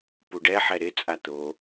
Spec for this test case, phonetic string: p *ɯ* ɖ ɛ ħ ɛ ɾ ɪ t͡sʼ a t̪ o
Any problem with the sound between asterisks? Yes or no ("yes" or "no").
yes